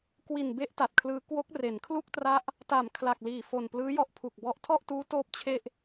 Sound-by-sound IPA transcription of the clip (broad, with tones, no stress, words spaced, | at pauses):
kwi˨˩nbe˦˥ʔ ta˨˩t̚kʰlɯː˦˥ kwo˦˥k̚re˩˦n kʰlu˥˩k̚tra˦˥ʔ | ta˩˦m kʰla˨˩k̚liː˨˩fo˨˩n plɯː˦˥jɔ˦˥ʔ pʰu˨˩k̚bɔ˦˥ʔ tʰɔ˥˩ʔtuː˦˥ toː˥˩p̚t͡ɕʰe˥˩ʔ